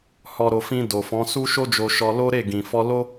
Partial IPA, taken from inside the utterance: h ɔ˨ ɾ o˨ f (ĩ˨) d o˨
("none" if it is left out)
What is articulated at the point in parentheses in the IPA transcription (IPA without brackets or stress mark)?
ĩ˧